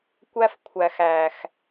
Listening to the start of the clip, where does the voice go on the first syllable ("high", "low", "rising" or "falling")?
high